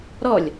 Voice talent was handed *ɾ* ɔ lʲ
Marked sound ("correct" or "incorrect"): correct